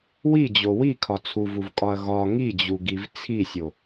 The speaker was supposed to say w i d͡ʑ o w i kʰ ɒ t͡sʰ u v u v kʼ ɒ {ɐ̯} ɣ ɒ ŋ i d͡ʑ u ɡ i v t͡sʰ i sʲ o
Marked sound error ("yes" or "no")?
no